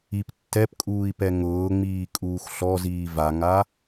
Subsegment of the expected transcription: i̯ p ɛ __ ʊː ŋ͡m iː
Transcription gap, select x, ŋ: ŋ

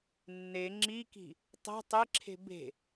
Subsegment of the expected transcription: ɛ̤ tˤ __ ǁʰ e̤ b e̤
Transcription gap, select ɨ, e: e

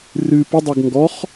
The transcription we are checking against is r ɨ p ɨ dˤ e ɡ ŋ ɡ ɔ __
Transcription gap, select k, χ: χ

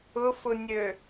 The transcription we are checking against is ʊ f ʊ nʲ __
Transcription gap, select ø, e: ø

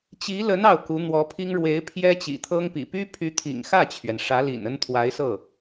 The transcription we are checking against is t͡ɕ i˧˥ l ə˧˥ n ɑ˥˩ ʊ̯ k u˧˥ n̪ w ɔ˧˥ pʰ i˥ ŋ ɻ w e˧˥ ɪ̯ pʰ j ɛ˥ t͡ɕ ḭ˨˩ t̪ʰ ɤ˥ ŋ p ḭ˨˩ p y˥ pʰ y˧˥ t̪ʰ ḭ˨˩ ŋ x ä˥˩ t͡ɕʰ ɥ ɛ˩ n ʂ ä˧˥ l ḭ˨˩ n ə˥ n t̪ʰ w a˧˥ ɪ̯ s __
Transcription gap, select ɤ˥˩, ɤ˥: ɤ˥˩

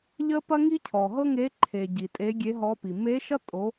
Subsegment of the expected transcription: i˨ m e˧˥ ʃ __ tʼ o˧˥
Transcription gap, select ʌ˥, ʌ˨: ʌ˥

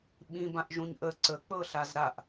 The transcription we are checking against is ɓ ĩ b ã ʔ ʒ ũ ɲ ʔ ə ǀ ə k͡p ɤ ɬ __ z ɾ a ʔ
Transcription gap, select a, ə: a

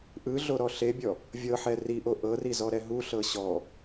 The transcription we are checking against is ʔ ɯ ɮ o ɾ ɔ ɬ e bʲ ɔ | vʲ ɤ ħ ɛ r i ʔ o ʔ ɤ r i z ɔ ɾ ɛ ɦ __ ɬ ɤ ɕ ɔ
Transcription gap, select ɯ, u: u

